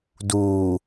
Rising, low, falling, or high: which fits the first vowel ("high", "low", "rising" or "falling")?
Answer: low